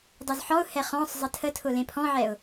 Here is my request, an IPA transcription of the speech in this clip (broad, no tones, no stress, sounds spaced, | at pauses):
dˤ o z ħ ɔ ʊ̯ h ɛ χ ɔ̃ sˤ zˤ ə tʰ ə tʰ ʊ l ẽ pʰ ɔ̃ ʕ ɛ ʊ̯